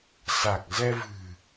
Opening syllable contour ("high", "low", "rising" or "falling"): low